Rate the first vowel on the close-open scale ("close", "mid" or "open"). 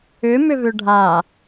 close